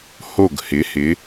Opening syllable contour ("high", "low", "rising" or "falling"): falling